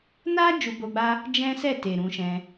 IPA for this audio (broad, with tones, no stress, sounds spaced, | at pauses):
n a˦ d͡ʒ u˧ b o˧ ɡ͡b a˦ | d͡ʒ ɛ̃˦ s ɛ˦˨ t e˨ ɾ ũ˧ ʃ ɛ̃˧